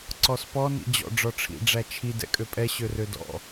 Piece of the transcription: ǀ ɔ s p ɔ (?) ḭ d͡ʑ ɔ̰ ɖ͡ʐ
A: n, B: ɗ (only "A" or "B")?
A